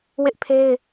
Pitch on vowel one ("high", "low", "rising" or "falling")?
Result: high